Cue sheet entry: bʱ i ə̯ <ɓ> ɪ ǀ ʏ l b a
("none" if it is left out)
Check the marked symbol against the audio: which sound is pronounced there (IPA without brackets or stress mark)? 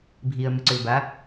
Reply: m